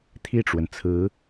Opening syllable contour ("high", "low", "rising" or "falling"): falling